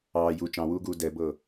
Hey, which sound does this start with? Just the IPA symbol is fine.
ɑː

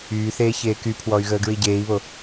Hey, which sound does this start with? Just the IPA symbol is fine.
yː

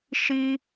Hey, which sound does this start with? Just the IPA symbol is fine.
ʃ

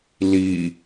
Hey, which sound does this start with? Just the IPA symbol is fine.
l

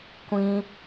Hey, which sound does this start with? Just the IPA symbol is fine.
kʷ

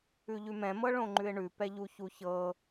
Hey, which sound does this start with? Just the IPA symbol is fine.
ʉ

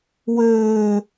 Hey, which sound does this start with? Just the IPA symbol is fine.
w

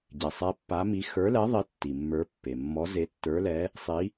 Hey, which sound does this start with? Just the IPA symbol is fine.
ɟ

